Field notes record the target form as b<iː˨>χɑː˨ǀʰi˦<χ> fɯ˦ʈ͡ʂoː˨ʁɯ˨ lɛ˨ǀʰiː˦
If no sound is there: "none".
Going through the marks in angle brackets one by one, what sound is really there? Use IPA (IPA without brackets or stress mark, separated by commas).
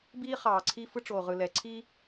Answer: iː˦, none